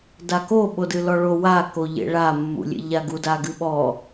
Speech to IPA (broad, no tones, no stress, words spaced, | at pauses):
dako ɓodɨlɔɭo wa koʎḛɭa mːṵlʲḛʎaɡu daɡɨɓɔ